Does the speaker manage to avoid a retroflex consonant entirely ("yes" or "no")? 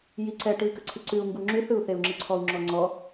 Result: no